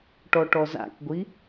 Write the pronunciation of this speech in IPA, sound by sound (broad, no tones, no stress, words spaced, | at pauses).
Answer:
ʈɔʈɔza̰kɡʷi